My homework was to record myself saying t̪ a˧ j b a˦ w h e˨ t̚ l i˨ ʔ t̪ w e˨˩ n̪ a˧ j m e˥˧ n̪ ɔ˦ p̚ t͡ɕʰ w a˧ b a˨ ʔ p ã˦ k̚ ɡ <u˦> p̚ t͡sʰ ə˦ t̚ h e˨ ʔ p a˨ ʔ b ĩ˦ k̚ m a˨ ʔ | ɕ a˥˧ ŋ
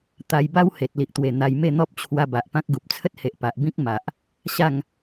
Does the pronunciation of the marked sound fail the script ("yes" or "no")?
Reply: yes